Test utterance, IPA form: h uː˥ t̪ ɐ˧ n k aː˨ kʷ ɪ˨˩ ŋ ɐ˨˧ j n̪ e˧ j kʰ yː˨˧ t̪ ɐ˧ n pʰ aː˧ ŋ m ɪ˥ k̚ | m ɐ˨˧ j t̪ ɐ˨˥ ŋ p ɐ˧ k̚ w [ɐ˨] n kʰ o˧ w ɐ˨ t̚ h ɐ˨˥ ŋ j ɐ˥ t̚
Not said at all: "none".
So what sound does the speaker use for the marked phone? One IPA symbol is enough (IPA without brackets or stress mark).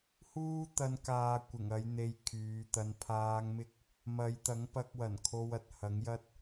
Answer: ɐ˨˩